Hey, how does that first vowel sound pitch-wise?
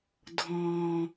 low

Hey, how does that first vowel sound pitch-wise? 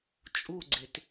falling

